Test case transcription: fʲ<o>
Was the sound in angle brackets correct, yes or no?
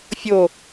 yes